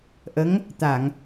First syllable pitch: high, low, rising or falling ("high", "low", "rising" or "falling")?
rising